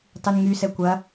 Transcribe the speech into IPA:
tˤynŋysɛ kʷɐ

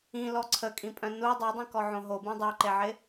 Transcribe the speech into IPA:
ĩlɔ ǀʰəkʼĩpʼœ̃ nu dˤɛdˤĩkɔʕõ ɦobũ dˤœǃeʕɪ

